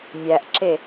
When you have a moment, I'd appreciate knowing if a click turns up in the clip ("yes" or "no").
yes